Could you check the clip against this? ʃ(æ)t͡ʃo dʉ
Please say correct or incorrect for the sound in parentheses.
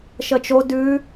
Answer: incorrect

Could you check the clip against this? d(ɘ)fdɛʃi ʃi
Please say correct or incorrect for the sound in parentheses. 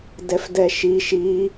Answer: incorrect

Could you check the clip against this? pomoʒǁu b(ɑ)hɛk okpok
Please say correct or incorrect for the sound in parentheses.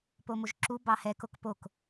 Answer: correct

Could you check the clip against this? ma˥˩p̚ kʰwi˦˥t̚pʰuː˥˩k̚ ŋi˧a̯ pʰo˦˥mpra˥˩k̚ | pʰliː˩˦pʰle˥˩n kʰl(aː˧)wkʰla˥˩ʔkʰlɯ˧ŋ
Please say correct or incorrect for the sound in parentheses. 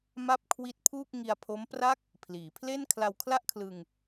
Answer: incorrect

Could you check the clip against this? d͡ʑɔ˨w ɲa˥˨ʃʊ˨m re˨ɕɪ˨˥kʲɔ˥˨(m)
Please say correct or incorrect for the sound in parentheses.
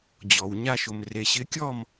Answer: correct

